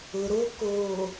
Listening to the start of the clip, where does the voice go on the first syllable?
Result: low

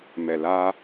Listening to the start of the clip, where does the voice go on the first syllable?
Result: low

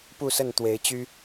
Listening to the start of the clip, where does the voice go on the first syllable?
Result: falling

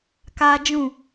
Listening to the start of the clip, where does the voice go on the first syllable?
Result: high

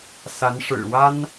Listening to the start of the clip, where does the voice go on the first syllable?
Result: rising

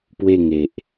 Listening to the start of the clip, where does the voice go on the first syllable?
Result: falling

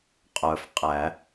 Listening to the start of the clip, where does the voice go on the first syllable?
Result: low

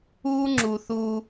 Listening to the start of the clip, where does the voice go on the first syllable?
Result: high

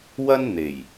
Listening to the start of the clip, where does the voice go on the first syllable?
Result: high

